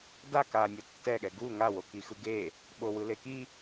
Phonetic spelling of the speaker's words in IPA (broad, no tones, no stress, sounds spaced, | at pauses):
d a k a nʲ ʌ tː ɛ ɠ ɛ ɡ u ŋ a w o k i x ɯ ɡ e | ɓ o w ɯ l e k i